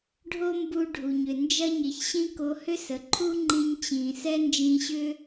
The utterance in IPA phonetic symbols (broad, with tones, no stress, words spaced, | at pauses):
ɖʱo˥mbu˧ ɖʱu˩ɲʏ˩ nd͡ʒɐ˥ɲɪ˩çɕĩ˥ ko˧hʏ˥sə˩ ǃʰu˥ ŋ͡ǃĩ˧ɲt͡ɕĩː˩sɛ˥ nd͡ʒĩ˧ɕʏ˥